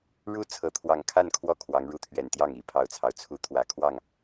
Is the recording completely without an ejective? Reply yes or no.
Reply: yes